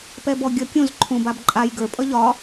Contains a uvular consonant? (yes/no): no